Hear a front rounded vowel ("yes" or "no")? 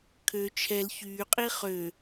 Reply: yes